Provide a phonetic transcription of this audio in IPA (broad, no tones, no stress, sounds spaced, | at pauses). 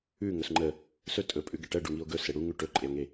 ʉ ŋ ɵ s ŋ͡ǃ ə | s ɵ tʼ ɵ pʼ ʉ ɡ ɛ ʈ ɜ ɖ u ŋ i o̯ ɡ ɵ s e ɽ u ŋ ʉ ʈ ɵ ǃʼ e o̯ ŋ e